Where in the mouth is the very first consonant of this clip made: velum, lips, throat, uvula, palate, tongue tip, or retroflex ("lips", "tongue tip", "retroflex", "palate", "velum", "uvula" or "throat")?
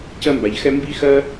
palate